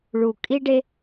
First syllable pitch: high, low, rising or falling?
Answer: low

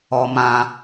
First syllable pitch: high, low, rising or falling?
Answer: low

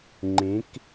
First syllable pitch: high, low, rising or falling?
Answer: rising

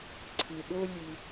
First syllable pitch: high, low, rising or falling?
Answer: low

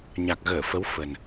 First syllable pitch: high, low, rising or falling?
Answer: low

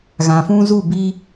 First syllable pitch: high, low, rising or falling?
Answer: low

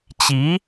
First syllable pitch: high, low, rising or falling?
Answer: rising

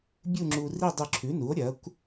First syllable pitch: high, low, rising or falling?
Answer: falling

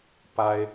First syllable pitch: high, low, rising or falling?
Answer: high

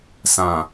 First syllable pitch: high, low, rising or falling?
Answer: low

